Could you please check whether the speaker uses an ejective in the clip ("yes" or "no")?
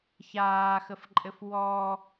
yes